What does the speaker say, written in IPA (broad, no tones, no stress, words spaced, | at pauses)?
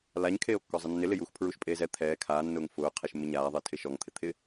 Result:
laɲkʰeːo̯kːɔzˤɪ nːɪlɪjuːx pʰɹuʃpʼeːzɛ t̪ʰɛː kʰaːnːʊːŋ fʊːqʰeʃ mɪɲaːðˤɪː tʰɪʃɔŋt̪ʰɪ t̪ʰɪ